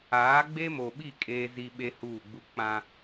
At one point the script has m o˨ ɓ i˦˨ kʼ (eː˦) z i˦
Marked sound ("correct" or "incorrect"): correct